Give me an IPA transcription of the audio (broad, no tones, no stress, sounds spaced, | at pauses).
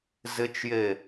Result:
z ɪ t͡ʃ j e